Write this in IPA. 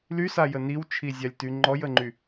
l y s a j ə n i w t͡ʃʰ i zʲ a lʲ t y ŋ͡ǃ ɔ j ə ŋ͡ǃ y

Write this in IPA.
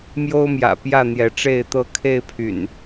m j o˦ ʊ̯ m j ä̰˨˩ p j ä˥˨ n̪ j ɛ˨˦ ʈ͡ʂ e˥˨ ɪ̯ t̪ ɤ˦ kʰ e˥˨ ɪ̯ pʰ y̰˨˩ n

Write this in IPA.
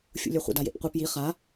fʲ ṵ lʲ œ χʷ ə̰ d a j ḛ p qʷ i p j i χ a

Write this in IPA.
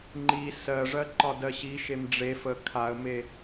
ŋ͡ǃ i s ɜ ʐ ɜ ǃ ɒ d ɜ ɕ i ʃ e m ɖ͡ʐ e f ə kʰ a ə̯ m e

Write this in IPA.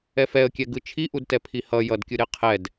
ɛ f ɛ ə̯ kʲ ɛ ɡ ɯ t͡ʃʰ i ʔ u d t ɛ pʰ i h ʌ j ʌ d kʲ ɯ ɾ e qʰ ɛ d

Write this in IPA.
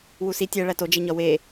w u s i tʲ æ ɭ æ t o d͡ʒ e ɲ ɒ w e

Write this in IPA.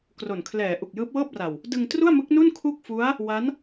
k r o˨˩ n kʰ l ɛː˩˦ ʔ u˨˩ k̚ j ɯː˦˥ p̚ w ɤː˥˩ p̚ r a˨˩ w | d ɯ˧ ŋ t r u˥˩ a̯ m ɯ˦˥ k̚ n u˥˩ n kʰ u˥˩ k̚ f u˦˥ a̯ | w a˦˥ n

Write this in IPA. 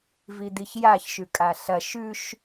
v i d̪ i ç j a ç ʃ ʉ kʼ a ɬ ɐ ʃ ʉ ʃ

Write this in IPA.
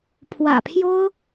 pʰ w ä̰˨˩ pʰ j o˥ ʊ̯

